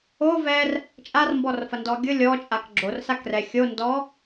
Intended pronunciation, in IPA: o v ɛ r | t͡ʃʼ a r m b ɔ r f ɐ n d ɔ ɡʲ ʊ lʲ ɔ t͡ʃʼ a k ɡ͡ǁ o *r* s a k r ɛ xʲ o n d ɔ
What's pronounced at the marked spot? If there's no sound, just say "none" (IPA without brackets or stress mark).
r